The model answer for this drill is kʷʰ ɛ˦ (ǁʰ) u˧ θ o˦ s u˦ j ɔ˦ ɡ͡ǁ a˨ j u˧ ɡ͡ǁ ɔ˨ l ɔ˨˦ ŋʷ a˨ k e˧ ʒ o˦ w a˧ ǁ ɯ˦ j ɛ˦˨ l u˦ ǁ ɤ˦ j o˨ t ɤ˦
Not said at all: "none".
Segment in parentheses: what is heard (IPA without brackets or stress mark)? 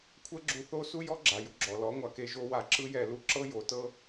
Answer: ɡ͡ǁ